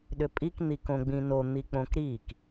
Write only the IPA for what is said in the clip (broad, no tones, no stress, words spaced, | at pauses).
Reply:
ɗʏpʼik n̪ikõɡ͡bĩno n̪ik͡põkɾik